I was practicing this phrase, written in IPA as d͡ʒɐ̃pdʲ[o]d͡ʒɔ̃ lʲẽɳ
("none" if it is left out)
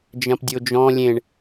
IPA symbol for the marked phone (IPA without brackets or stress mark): o